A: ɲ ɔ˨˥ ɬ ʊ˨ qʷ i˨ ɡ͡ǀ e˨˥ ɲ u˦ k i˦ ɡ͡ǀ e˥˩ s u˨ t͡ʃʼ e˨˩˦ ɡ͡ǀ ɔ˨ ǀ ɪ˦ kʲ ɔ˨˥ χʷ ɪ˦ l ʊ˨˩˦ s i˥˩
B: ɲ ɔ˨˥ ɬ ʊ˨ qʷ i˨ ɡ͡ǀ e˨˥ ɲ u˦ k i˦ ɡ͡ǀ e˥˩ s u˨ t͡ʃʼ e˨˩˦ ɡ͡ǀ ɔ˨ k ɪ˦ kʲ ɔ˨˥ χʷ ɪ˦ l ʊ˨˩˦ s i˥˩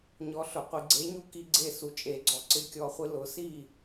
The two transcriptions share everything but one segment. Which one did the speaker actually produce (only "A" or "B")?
A